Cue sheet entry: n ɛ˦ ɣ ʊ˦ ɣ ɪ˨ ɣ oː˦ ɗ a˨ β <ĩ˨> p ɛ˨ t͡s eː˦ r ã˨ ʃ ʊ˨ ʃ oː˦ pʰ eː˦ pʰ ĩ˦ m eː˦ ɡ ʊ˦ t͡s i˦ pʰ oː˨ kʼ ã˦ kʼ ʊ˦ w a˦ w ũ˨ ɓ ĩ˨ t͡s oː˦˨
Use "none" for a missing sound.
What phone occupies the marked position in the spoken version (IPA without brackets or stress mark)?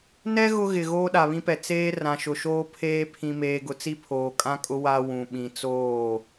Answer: ĩ˦